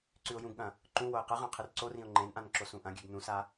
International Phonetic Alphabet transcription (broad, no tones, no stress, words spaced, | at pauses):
ǀʉʊ̯jũɡɠɐ̃ | ǃũ woɪ̯qɨʁã qʰɨrǀorĩʊ̯ ŋ͡ǃẽnʔãn ǁosũʔɐ̃ɡʲʉɡ nũsa